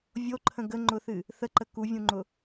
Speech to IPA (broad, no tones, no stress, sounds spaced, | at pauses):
vʲ o ǃʰ ə̃ ɡ ə ŋ͡ǃ ʊ θ ɨ | θ ə ǃ ə k u vʲ ũ ŋ͡ǃ ʊ